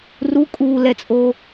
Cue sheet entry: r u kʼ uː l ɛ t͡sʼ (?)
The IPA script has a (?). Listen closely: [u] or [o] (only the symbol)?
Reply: o